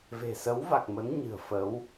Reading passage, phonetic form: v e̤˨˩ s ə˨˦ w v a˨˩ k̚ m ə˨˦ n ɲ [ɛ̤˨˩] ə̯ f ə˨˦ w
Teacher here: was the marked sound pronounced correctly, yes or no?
no